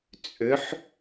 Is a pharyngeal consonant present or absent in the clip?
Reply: present